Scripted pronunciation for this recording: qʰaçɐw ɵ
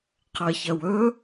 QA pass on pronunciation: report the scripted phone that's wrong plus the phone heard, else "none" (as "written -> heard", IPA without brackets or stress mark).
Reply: a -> ɐ